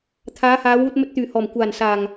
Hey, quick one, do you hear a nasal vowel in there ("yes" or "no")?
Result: no